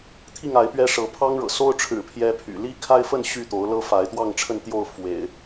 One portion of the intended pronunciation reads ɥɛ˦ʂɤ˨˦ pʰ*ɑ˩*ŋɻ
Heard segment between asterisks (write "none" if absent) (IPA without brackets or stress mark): ɑ˦